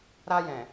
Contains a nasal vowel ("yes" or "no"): yes